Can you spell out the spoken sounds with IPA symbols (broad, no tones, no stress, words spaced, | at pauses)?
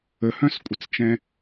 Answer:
əhœ̃skʷʼʌt͡st͡ʃɛ̃